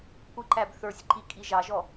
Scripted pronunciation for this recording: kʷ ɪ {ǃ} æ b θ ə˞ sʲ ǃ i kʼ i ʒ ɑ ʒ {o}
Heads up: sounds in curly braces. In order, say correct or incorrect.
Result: correct, incorrect

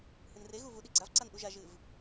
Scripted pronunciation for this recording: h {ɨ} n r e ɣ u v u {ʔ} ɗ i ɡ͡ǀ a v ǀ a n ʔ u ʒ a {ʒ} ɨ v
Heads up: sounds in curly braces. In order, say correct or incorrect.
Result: correct, incorrect, correct

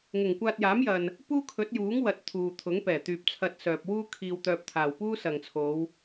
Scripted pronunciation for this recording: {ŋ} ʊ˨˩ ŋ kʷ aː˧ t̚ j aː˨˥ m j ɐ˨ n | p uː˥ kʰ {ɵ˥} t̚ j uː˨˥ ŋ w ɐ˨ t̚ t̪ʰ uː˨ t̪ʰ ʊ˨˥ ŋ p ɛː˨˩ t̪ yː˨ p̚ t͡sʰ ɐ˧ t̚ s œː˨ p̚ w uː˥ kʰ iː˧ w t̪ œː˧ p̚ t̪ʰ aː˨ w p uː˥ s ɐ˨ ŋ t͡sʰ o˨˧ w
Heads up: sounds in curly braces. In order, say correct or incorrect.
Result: correct, incorrect

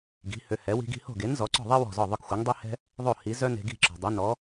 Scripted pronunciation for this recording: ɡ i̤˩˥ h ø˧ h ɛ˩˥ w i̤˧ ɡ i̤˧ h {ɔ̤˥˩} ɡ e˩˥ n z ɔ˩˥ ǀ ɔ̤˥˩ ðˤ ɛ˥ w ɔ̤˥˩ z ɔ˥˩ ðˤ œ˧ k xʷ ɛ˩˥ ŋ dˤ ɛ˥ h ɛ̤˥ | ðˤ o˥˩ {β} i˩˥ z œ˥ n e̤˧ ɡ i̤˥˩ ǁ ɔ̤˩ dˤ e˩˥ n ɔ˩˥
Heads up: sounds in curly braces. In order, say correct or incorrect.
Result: incorrect, incorrect

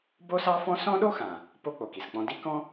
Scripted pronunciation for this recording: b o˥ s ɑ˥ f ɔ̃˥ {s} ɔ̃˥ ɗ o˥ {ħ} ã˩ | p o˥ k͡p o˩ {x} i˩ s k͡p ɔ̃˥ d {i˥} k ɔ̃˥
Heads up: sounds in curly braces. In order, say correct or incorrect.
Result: correct, incorrect, incorrect, correct

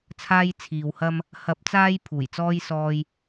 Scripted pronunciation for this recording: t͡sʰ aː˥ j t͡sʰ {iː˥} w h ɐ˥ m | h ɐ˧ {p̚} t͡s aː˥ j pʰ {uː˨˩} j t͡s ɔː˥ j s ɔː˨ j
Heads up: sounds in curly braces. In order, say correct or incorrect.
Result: incorrect, correct, correct

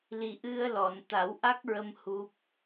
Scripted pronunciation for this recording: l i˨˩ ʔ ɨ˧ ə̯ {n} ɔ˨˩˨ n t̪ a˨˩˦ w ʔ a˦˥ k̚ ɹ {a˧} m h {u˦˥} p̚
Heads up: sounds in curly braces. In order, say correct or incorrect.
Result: incorrect, incorrect, correct

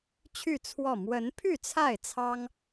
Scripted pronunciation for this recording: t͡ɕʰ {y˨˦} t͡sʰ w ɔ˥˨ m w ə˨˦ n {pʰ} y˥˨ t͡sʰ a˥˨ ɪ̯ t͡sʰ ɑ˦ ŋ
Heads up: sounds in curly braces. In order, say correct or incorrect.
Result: incorrect, correct

